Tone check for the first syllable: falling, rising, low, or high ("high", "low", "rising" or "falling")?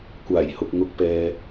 low